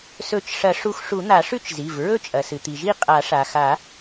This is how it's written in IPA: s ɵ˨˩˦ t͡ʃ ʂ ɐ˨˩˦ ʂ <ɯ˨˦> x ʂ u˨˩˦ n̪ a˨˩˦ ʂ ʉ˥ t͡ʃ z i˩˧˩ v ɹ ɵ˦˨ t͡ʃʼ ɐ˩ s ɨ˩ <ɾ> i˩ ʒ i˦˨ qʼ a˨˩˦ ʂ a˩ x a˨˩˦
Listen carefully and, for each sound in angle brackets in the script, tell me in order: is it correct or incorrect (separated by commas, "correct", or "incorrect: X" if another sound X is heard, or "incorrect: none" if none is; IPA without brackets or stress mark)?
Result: incorrect: u˨˦, incorrect: t̪